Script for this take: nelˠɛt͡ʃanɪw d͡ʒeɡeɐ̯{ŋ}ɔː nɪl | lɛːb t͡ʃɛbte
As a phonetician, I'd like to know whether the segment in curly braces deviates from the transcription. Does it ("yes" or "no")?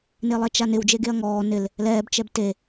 no